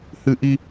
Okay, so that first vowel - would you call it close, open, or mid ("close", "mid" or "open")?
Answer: close